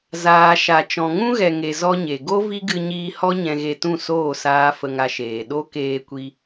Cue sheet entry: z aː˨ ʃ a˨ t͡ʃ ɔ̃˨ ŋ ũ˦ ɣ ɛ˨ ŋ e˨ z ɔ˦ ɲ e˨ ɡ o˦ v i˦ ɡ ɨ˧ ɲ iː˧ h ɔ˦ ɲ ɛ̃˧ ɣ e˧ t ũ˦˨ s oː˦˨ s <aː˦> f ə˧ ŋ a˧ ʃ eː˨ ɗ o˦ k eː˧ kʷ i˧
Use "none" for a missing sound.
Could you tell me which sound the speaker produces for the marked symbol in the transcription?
aː˦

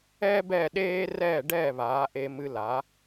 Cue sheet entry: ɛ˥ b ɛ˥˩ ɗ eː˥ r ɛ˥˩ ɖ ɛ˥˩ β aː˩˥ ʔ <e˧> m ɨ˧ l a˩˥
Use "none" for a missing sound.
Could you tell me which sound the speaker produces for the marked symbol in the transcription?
e˧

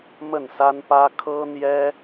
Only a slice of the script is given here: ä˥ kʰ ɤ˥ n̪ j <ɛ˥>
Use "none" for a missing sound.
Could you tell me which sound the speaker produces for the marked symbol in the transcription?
ɛ˥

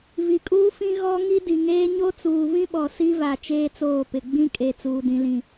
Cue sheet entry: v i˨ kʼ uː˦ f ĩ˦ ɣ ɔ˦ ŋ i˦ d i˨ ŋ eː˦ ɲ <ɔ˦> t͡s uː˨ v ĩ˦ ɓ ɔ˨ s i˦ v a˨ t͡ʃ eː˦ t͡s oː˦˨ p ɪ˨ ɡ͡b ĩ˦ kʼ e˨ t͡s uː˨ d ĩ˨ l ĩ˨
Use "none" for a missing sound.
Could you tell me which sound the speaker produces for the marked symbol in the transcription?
o˦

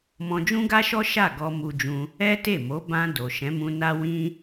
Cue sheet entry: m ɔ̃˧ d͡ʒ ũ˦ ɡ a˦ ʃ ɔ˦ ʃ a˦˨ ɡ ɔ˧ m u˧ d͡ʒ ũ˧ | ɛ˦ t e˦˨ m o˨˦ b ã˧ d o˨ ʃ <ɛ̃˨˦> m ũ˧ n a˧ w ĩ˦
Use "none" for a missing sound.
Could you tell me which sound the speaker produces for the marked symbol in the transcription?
ɛ̃˨˦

